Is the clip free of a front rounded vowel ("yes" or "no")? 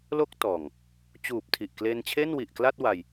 yes